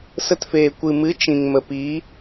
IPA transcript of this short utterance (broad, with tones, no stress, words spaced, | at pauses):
sə˧tfeː˨ kʷɨ˨mɨ˨˦ t͡ʃĩ˨ŋmə˨piː˨˦